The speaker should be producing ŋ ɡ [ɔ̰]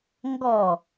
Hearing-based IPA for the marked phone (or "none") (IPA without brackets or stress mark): ɔ